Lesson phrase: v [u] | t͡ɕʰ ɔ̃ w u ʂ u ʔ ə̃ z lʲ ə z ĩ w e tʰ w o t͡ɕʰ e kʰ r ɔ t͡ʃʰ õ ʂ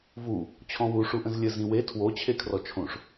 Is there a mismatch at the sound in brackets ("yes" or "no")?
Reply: no